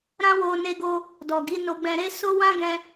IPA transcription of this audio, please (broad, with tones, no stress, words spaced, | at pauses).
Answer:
ɾã˦wo˧ne˧ɡo˧ | dɔ˨ɡi˨˦no˧ ɡ͡bɛ̃˧ɾe˦ so˦ wã˦ɡɛ̃˧